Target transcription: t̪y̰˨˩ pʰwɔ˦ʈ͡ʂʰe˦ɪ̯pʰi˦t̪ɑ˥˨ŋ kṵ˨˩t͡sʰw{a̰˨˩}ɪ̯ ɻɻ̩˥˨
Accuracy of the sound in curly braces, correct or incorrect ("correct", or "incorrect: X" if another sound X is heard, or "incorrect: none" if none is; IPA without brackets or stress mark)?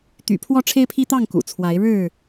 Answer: incorrect: a˨˦